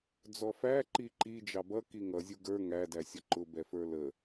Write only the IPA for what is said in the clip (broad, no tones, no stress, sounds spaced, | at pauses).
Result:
d͡z ɔ f æ ǃ i ǃ i d͡ʒ ɑ b ʌ k i ŋ ʌ zʲ u ɡ ə˞ ŋ æ d æ sʲ ʌ ǃ ʊ b ɛ f ə˞ l ə